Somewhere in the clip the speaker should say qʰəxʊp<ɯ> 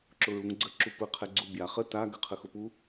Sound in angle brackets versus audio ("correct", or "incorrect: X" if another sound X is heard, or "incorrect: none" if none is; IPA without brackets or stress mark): incorrect: u